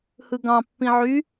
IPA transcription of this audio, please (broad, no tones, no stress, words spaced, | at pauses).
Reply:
hɯɡɑ̃ pːĩʕy